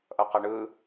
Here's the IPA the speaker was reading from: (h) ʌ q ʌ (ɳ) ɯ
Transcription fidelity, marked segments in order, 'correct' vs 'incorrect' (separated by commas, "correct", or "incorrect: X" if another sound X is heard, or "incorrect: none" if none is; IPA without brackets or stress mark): incorrect: ʔ, correct